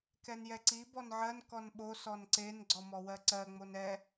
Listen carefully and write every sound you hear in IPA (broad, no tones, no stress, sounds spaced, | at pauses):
k ɛ n j ɛ ǀ i b ɔ n ʕ ɜ n k ɔ n ɓ o s ɔ n ǀ e n ɡ͡ǀ ɔ m ɔ w ɜ ǀ ɜ ŋ͡m o n ɛ